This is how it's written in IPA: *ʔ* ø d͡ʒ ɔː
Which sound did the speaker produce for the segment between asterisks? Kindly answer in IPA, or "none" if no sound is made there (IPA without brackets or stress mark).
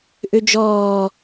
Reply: ʔ